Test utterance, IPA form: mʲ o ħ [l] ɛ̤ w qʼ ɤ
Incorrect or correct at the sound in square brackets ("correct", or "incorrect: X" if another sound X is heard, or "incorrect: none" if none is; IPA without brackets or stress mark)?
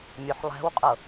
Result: incorrect: lˠ